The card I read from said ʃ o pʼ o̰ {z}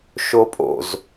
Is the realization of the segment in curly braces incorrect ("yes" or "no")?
no